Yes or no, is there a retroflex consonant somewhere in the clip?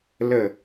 no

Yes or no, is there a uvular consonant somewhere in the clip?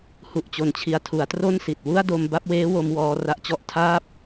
no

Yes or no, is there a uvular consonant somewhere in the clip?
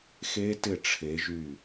no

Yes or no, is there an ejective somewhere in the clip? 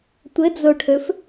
no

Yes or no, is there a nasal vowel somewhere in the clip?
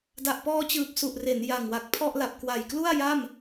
no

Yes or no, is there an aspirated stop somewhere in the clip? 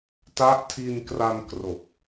yes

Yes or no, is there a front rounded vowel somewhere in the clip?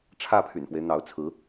yes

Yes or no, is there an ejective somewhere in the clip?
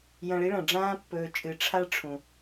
yes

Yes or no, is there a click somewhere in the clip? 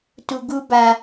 no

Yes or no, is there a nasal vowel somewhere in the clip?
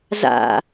no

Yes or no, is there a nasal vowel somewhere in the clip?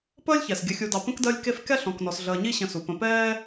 yes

